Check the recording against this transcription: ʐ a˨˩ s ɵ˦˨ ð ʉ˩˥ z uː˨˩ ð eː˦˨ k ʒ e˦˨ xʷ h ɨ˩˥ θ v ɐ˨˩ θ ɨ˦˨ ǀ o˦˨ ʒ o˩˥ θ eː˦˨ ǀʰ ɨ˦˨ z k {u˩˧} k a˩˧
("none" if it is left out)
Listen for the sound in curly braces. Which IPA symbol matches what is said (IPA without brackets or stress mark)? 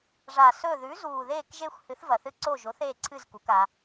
u˩˧